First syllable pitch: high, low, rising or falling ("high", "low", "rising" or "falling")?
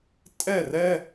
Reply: falling